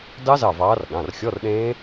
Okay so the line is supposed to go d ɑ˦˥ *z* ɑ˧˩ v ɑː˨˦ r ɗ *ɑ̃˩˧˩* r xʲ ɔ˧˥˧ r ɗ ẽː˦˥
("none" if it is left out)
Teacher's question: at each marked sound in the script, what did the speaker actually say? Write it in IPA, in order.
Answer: z, ɑ̃˩˧˩

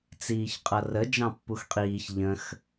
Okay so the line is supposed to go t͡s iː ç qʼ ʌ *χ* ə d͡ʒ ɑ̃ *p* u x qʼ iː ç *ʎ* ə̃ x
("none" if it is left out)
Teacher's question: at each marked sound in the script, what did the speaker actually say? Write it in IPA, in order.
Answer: r, pː, ʎ

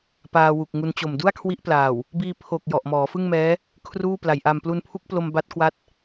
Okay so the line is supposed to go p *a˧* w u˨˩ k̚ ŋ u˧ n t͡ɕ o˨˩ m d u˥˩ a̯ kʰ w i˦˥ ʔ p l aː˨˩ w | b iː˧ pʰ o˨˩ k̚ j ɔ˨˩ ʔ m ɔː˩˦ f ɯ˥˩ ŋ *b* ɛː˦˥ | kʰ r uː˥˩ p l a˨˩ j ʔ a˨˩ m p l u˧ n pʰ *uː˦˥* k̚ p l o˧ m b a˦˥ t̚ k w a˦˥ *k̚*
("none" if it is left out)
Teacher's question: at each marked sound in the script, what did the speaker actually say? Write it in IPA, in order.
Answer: aː˧, m, u˦˥, t̚

